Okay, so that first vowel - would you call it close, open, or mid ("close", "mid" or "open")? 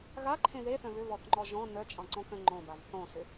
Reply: open